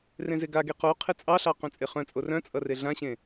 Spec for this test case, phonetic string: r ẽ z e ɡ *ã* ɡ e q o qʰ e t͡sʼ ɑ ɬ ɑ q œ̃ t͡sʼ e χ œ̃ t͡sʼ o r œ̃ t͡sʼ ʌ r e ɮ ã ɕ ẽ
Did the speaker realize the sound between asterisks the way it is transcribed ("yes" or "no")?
no